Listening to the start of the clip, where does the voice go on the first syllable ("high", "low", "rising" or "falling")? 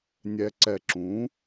low